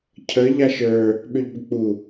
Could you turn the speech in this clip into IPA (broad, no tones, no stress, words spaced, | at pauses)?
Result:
cʰə ʎaʃə˞ | ɓʏʎbʏk͡pu